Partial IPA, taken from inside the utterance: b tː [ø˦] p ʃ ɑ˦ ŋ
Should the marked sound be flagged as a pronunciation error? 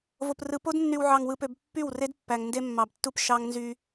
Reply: yes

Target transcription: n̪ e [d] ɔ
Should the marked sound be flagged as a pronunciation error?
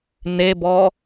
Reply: yes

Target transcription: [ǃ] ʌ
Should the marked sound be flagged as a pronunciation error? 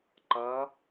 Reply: no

